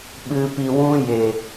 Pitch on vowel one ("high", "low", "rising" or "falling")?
low